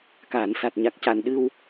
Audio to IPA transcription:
k aː˨˩˨ n s a˨˩ t̚ ɲ a˨˩ k̚ c a˨˩ n ɗ ɨ˧ w

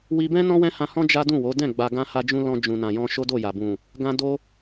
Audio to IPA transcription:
w i˧ b ɛ̃˦ n ɔ̃˦ w ɛ̃˦ h ã˧ h ɔ̃˦ d͡ʒ a˦ d ũ˦˨ w o˨˦ d ɛ̃˦˨ ɡ͡b a˧ ɡ ã˦ h a˦ d͡ʒ ũ˦ l ɔ̃˧ d͡ʒ ũ˨ n ã˨ j ɔ̃˧ ʃ o˦ d o˦˨ j a˨ b ũ˨ | ɡ ã˦ d o˦

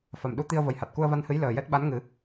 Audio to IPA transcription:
f a˨˩ m ɗ u˧ t̪ i˧ ə̯ v ə˨˩ j h a˨˩ t̚ k u˧ ə̯ v a˧ n h ɨ˧˥ j l əː˨˩ j ɛ˦˥ t̚ ɓ a˧˥ n ŋ ɨ˨˩˦

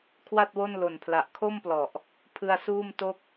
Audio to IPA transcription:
kʰ w a˥˩ t̚ w o˥˩ n l o˨˩ n pʰ l a˨˩ ʔ kʰ o˥˩ m p l ɔ˨˩ ʔ | pʰ ɯ˧ a̯ s uː˥˩ m t o˥˩ k̚

